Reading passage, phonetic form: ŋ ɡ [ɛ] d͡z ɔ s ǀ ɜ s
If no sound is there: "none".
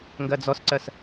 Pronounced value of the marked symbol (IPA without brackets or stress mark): ɜ